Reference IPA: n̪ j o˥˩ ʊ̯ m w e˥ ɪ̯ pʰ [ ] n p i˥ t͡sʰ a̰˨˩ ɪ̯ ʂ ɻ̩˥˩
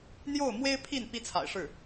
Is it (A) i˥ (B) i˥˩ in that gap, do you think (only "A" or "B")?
B